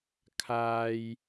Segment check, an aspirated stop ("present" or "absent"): present